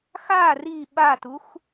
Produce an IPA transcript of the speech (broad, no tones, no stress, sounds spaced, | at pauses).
x a r i ɓ a t u x